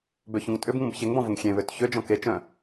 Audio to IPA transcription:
b ø ç ũ ŋ tʼ ʏ b ŋ ũ b ç e ŋ b ɔ̃ v ʊ ŋ xʲ ẽ β ø t ç ø d͡ʒ ɔ̃ k e t͡ʃ œ̃

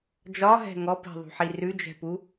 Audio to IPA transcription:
d͡ʒ ɒ ɦ ɛ̤ ŋ ɔ p i̤ ðˤ ṳ ħ i r ʉ d͡ʒ ɛ̤ p u

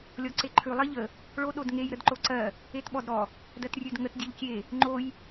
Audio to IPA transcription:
lʲ ɔ ǀ e ǃʰ ʉ lˠ ɜ ʎ ə | ɭ o ɗ o d ŋ e j ɾ ə d ǃ o ǀ ɜ | e t ɓ ɔ d ɾ ɔ | d ɜ t rʲ ʉ d ŋ ə t dʲ e ʎ kʲ e | ŋ͡ǃ o j

